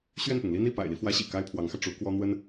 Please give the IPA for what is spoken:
ɕ ɥ ɛ˥˩ n p ʊ˩ ŋ l i˥ n i˥˩ p a̰˨˩ ɪ̯ l i˦ f w ä˧˥ ɕ ḭ˨˩ k a˥ ɪ̯ pʰ w ɑ˧˥ ŋ x ä˧ ʈ͡ʂ u˧˥ k w ɔ˥ n̪ w ə˥ n

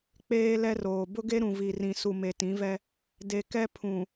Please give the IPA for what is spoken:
k͡p eː˦ l ɛ˦ r oː˨ b ʊ˦ ɡ e˦ ɾ ũ˨ v i˨ r ĩ˨ s u˨ m e˨ t ĩ˨˦ v ɛ˦ | d e˨ k ɛ˦ pʰ ũ˨

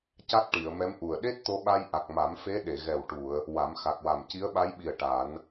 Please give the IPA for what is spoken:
c a˦˥ t̚ ʈ i˨˩˨ ə̯ m ɛ˧˥ m ʔ u˨˩ ə̯ ɗ e˦˥ t̚ t̪ o˧ ɓ a˧ j ʔ a˨˩ k̚ m a˨˩˦ m f e˧˥ ɗ e˨˩˨ ɣ ɛ˨˩ w ʈ u˨˩˨ ə̯ | w a˨˩˦ m x a˨˩ k̚ w a˨˩ m c i˧˥ ə̯ ɓ a˧˥ j ɓ i˨˩ ə̯ ʈ a˨˩˦ n

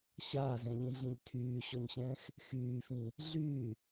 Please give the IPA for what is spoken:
ɕ aː z ɛ̃ ʎ ĩ ɮ ĩ ʎ tʰ yː ɕ ɔ ɲ ɕ ɛ̃ː x | x yː f ĩ | ɮ yː

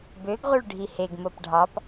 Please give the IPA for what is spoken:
b ø ɡ ʁ u ɭ ɖʱ i h e ɡ m o p ɖʱ ɑ p

